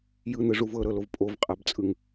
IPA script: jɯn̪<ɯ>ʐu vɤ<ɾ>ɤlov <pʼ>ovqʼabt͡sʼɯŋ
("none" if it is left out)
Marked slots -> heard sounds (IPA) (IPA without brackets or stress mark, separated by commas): ɯ, ɾ, pʼ